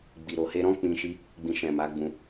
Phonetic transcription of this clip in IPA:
ɡ͡b i˨ ɾ o˨ h e˧ ɾ ɔ̃˦ k͡p ĩ˧ ʃ i˧ | ɡ͡b ĩ˨ ʃ ɛ̃˨ m a˨˦ ɡ͡b ũ˧

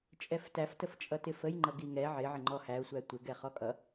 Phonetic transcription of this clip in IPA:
t͡ʃʼ ɛ f t æ f t ə f t͡ʃʼ ʌ t ɪ f ə j ŋ͡ǃ ʌ ɡ i ŋ ɛ ʕ ɪ ʕ ɪ ŋ͡ǃ ɔ h æ ʊ̯ sʷ æ tʷ ɪ ɡ ɛ χ ɔ kʼ ʌ

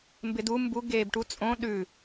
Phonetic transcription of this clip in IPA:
m b ɪ d u m b u ɡ eː b ʈ u t͡sʼ õ ɗ ʉ

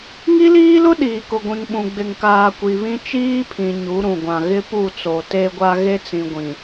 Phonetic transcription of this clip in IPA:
ŋ i˦ l iː˦ l ʊ˦ ɗ iː˨ k ʊ˨ ɡʷ ĩ˨ ŋ ɓ ũ˨ ɡ͡b ɪ˨ ŋ k aː˨ kʷ i˨ β ĩ˦ t͡ʃ iː˦ pʰ ĩ˨ ɲ u˨˦ ɾ ũ˨ ɡʷ ã˨ ɣ ɪ˦ p u˦˨ t͡s o˨ t e˦ ɡʷ a˦ ɣ e˦ t͡s ĩ˨ ɡʷ ĩ˨

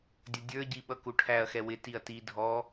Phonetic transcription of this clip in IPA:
dʲ ʌ dʲ ə˞ ɟ i ɓ ʌ k u ʈʰ æ ɐ̯ x ɛ w ɪ t i ɐ̯ t i dʱ ɔ

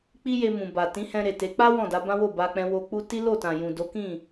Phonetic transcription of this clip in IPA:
k͡p i˦ j e˧ m ũ˨ b a˨ t ĩ˨˦ h ɛ̃˧ ɾ e˨ t e˨˦ k͡p a˦ w ɔ̃˦˨ d a˨˦ b ã˦ w o˦˨ b a˧ k͡p ɛ̃˦ w o˧ k͡p u˦ t i˦ l o˦˨ t ã˨ j ũ˨ d o˨˦ k ĩ˦˨

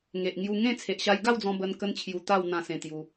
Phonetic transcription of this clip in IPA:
ŋ e˨ ʔ ŋ j u˧ ŋ ẽ˥˧ t͡sʰ e˨ ʔ ɕ a˧ j ɡ a˥˧ w d͡z ɔ̃˧ b ə˧ n k ə˦ n t͡ɕʰ j u˧ t̪ a˥˧ w n̪ ã˦ s ẽ˧ t̪ j u˧

